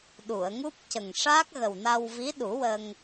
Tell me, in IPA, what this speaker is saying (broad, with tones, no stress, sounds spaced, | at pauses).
ɗ u˨˩˨ ə̯ ŋ u˦˥ p̚ c ə˨˩ ŋ ʂ aː˦˥ k̚ ɣ ə˨˩ w n a˧ w v i˧˥ ɗ u˨˩˦ w ə˧ ŋ